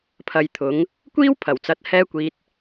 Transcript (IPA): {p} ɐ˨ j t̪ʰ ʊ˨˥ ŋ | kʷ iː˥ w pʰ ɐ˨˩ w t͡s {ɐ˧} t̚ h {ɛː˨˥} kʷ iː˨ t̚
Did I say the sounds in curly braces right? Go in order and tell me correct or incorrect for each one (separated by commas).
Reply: incorrect, incorrect, incorrect